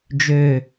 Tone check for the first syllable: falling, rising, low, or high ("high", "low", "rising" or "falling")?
low